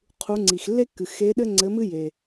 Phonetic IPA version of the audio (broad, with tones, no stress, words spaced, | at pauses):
qʰu˧˥ ŋ͡ǀi˨xlːe˥kːɨ˨xe˧˥ ɗɘ˥ŋ͡ǀɘ˧˥mɨ˥ je˨